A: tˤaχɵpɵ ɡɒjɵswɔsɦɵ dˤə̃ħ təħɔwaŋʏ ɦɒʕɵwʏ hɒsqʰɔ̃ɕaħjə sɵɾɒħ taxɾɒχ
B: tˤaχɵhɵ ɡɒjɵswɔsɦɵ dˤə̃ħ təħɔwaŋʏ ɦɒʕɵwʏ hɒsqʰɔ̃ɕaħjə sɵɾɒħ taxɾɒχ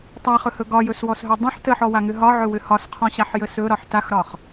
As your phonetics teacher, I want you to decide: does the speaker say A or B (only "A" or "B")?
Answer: B